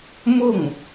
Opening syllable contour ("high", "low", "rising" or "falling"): falling